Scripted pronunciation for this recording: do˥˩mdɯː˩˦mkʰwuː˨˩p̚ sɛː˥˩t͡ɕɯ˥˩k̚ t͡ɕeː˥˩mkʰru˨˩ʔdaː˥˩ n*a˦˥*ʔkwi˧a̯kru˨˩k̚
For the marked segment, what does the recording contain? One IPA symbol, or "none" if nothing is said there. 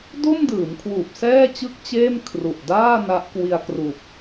a˦˥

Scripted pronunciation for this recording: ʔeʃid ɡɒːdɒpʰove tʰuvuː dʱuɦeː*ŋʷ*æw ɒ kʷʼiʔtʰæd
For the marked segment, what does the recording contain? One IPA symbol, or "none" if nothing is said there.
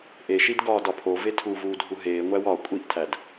ŋʷ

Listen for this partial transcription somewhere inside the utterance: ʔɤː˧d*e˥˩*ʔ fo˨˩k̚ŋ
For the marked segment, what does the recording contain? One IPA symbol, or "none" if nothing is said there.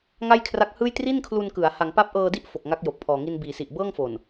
i˥˩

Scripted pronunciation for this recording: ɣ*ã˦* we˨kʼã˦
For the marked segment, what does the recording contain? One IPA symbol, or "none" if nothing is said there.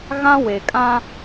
ã˦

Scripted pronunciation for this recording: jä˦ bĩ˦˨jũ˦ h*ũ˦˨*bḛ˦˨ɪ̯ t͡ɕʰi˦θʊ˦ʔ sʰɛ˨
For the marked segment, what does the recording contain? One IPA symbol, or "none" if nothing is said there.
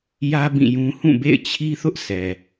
ũ˦˨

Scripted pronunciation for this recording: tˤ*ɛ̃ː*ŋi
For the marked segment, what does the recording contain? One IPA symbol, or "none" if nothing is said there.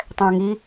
ɛ̃ː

